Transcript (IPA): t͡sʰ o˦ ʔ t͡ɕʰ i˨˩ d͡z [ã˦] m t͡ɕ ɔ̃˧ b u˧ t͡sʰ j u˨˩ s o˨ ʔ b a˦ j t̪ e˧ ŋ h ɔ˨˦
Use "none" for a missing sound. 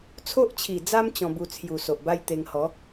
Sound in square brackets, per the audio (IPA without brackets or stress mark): a˦